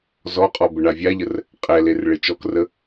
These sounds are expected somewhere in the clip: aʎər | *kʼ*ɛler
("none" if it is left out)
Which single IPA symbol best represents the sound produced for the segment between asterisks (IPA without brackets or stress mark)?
qʼ